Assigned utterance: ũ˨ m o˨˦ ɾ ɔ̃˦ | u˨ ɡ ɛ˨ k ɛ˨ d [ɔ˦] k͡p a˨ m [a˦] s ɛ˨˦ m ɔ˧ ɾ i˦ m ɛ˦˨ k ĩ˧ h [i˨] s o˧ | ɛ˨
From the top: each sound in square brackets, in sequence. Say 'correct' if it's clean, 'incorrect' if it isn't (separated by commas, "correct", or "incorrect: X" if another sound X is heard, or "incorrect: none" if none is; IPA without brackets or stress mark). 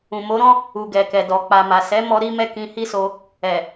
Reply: incorrect: ɔ˨, incorrect: a˨, incorrect: i˦